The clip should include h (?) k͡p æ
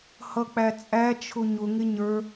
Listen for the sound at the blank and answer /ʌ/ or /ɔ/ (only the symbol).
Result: ʌ